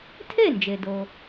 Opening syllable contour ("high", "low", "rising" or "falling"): falling